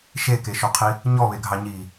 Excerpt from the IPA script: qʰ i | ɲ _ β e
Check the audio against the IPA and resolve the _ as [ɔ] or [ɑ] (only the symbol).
ɔ